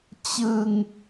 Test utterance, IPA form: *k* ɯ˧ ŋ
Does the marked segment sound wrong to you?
yes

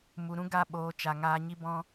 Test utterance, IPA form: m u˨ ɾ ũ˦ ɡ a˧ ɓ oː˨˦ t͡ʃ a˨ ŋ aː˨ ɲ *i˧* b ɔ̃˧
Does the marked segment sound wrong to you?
no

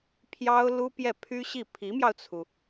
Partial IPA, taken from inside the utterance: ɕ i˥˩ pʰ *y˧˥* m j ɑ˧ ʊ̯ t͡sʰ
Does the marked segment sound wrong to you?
yes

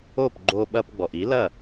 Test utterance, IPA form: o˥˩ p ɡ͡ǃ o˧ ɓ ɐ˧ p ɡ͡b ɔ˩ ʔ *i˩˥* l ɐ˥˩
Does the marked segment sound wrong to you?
no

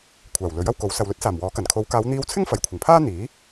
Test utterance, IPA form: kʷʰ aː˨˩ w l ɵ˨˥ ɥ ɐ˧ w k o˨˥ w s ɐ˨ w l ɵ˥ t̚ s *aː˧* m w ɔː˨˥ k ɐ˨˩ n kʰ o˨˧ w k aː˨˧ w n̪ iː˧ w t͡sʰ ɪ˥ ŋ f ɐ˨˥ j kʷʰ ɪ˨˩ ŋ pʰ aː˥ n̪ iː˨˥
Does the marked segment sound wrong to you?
yes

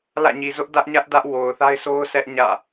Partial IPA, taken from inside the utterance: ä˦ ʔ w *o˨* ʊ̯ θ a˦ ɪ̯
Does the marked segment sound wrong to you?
no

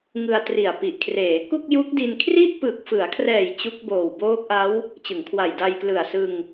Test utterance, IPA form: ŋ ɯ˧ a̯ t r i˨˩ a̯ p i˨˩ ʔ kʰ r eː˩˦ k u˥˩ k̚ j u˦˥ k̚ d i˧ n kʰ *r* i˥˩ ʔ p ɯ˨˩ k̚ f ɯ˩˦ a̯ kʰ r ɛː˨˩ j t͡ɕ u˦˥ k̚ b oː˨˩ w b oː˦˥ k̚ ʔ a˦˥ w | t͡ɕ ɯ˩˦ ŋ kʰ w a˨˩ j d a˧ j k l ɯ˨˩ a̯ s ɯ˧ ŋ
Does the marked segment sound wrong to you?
no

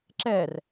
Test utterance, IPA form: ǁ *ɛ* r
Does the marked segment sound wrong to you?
no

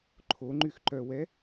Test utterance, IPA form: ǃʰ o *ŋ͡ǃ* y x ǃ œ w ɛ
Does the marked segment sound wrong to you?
no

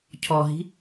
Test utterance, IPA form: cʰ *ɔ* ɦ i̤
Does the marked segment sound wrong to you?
no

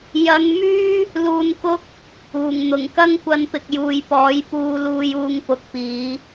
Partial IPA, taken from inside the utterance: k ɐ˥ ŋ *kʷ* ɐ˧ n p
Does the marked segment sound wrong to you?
no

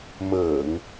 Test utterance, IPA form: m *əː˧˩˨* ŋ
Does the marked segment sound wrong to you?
no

